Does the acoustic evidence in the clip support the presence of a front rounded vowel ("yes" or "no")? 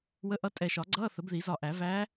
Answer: no